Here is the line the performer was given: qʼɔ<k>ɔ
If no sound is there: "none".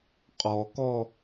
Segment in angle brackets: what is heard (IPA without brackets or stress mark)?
k